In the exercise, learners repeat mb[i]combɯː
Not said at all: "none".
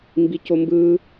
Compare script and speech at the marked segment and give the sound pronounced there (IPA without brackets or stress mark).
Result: i